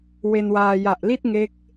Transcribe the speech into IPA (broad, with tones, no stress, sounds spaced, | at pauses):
w e˧ n w aː˧ j a˨˩ ʔ l i˥˩ t̚ ŋ e˦˥ k̚